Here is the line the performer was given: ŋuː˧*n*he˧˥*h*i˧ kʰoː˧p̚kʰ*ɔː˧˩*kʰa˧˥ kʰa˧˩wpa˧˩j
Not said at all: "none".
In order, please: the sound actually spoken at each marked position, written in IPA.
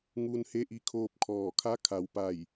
n, ʔ, ɔː˧˩

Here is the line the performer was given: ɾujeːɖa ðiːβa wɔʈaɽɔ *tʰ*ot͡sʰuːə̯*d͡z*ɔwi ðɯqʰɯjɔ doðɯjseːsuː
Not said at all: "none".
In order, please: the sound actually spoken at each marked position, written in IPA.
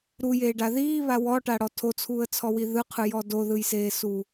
tʰ, t͡sʰ

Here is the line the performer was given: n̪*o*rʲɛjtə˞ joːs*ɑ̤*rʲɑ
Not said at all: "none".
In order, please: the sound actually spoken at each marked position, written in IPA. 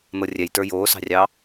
ɤ, ɑ̤

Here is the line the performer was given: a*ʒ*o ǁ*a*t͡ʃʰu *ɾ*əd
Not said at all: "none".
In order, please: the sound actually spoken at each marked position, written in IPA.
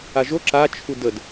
ʒ, a, d

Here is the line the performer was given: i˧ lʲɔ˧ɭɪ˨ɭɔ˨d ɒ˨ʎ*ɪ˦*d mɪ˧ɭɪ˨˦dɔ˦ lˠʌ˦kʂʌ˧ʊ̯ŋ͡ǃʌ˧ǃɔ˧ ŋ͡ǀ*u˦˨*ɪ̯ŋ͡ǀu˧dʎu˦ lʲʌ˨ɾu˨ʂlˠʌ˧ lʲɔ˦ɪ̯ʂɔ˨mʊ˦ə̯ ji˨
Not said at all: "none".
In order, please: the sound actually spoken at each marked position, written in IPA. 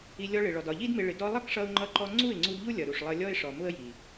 i˦, u˦˨

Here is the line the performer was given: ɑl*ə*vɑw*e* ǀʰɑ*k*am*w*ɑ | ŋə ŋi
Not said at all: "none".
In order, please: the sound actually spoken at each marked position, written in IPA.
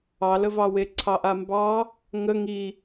ə, e, ʔ, b

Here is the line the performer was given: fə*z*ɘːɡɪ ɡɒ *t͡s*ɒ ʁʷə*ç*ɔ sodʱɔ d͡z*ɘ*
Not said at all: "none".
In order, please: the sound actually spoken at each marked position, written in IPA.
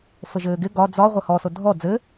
ʒ, d͡z, h, ɘ

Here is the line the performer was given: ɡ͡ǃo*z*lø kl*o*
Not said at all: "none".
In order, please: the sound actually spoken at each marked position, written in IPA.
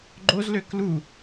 z, u

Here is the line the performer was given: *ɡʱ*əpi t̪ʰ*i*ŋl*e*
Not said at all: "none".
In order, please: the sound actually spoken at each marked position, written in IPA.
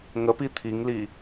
ŋ, i, i

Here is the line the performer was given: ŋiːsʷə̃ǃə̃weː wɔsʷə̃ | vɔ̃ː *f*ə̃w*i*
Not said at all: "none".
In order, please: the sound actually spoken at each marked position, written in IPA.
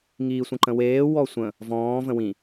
v, ĩ

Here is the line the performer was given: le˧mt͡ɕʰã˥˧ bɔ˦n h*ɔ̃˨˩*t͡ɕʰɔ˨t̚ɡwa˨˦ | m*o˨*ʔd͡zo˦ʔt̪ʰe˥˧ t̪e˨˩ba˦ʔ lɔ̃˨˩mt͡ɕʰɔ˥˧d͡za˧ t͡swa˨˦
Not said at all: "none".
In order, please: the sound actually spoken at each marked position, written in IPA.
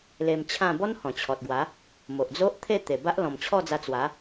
ɔ̃˨˩, o˨

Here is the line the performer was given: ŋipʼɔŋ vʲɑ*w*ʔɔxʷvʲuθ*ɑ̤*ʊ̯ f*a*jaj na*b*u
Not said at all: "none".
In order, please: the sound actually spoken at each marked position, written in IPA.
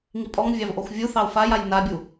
v, ɑ, a, bʲ

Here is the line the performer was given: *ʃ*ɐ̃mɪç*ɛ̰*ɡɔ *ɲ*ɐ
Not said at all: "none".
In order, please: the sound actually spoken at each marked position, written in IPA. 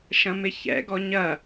ʃ, ɛ̰, ɲ

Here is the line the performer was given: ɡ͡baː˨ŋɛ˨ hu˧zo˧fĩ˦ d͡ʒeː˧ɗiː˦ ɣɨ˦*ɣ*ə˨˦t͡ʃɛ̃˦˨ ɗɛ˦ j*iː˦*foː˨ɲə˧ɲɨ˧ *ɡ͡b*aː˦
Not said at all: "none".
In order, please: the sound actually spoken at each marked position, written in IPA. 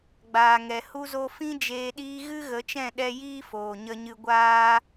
ɣ, iː˦, ɡʷ

